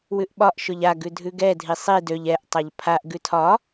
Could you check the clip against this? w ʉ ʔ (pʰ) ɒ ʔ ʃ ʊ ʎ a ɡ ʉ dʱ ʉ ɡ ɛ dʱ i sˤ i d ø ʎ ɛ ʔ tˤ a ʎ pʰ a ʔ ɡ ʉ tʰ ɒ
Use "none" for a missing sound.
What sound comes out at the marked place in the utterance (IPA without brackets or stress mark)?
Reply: ɓ